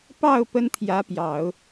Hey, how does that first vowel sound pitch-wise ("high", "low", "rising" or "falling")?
falling